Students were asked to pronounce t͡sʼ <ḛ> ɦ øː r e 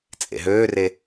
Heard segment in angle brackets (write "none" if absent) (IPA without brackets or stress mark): ḛ